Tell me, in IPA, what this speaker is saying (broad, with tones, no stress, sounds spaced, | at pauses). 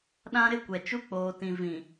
ɗ ã˦ ɾ ɪ˦ kʷ ɛ˨ t͡ʃ u˦ k͡p oː˨ t ĩ˨ v ĩ˨